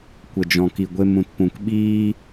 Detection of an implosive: present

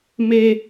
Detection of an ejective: absent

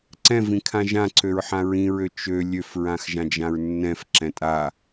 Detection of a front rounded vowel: present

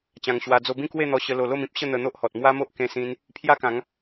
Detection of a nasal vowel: present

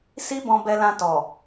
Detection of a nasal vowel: present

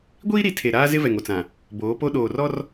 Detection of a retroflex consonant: absent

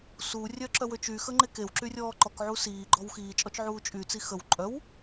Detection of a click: present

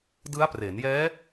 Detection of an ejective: absent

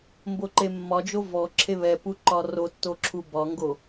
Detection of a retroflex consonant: absent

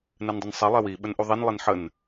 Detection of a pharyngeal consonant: present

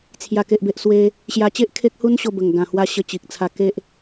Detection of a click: absent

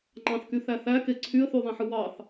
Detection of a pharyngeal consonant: present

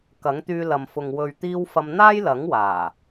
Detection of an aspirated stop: absent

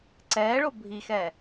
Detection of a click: present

